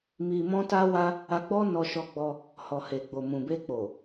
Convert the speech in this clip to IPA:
m i˧ m ɔ̃˦ t a˦ w a˦ | a˧ ɡ͡b ɔ˦ n ɔ˧ ʃ ɔ˧ ɡ͡b ɔ˧ | h ɔ˨ h e˨ ɡ͡b o˨ m ũ˨ b e˧ k͡p o˨

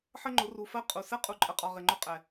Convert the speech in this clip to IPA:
ħ ə˦ ŋ͡ǃ ʊ˨˦ r u˨ f ɜ˦ qʼ u˨ s ɛ˦ qʼ u˨ ǃʼ ə˨ qʼ ɒ˨ ʁ ɪ˨ ŋ͡ǃ ʊ˦ qʼ ɛ˨

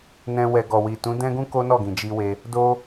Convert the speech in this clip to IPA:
n ɛ̃˧ w ɛ˨ ɡ ɔ˨ w i˨ t ũ˨˦ d ɛ̃˦ ɡ ũ˦ k o˦ n ɔ˦˨ ɡ ĩ˨ d͡ʒ i˧ w e˧ | d o˦

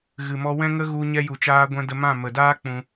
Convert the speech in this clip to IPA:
ɣ ɨ˨ m ɔ˧ w ɛ̃˦ ŋ ə˦ ɣ u˧ ɲ ɛ˧ j u˨ t͡ʃ aː˧ ɡʷ ɛ̃˧ d ə˧ m ã˦˨ m ə˨ d aː˦ k͡p ũ˧

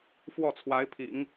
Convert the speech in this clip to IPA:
f w ɔ˥˩ t͡sʰ w a˧˥ ɪ̯ pʰ ḭ˨˩˦ ŋ

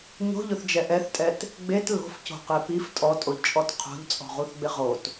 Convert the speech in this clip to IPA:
ɲ o̤ ʎ ʊ θ d͡ʒ ɛ ʔ ɛ θ tʼ ɛ t | ɡ͡b e t l o̤ f c o̤ q e p i f tʼ ɔ tʼ o ʎ t͡ʃʼ ɔ t qʰ o̤ ʎ t͡sʼ ɔ̤ ʁ u θ ɡ͡b ɪ ʁ o t

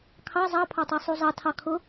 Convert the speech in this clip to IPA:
kʰ ɑ zˤ ɑ pʰ ɑ tˤ ʌ sˤ u zˤ ɑ tʰ ɑ kʰ ʊ

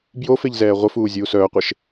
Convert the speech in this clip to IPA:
b j o f e ʎ z ɛː ʁʷ ə f uː zʲ uː s œː qʷ e ʃ

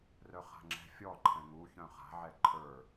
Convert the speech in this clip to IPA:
r œ χ a̤ ŋ͡ǁ ɛ̤ fʲ ɔ ǃʰ ɛ̃ ŋ u ç œ̃ χ a̤ ʕ ɛ ǃʰ ə˞

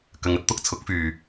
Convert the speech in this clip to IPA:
k ɐ˨˧ ŋ ɐ˧ t̚ t̪ ʊ˥ k̚ t͡sʰ ʊ˨˥ k̚ f yː˨

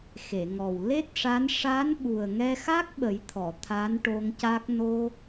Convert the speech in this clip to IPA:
x e˨˩˨ ŋ ɔ˨˩ w l e˦˥ t̚ ʂ a˧˥ n ʂ a˧˥ n ɓ u˨˩ ə̯ ŋ ɛ˧ x a˦˥ k̚ ɓ ə˨˩˦ j t̪ʰ ɔ˨˩˨ t̪ʰ a˧˥ n ʈ o˧ ŋ c a˦˥ k̚ n o˧

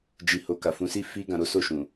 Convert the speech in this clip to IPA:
d͡ʒ i˧ h o˧ k a˨ f ũ˨˦ s i˦ f i˦ ɡ ã˧ ɾ o˦ s o˦˨ ʃ ũ˨

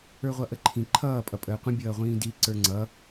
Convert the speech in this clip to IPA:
ə˞ ʁʷ ʌ ʔ ə ǃʰ ĩ ǃʰ ʌː pʼ ʌ pʼ əː qʷ ə̃ bʲ ʌː ʁʷ ĩː d i ǀ ə˞ ŋ͡ǀ ʌ

